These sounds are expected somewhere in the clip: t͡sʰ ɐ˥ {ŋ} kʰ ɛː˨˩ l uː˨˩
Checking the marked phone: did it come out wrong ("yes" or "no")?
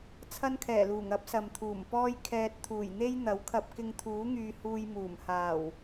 yes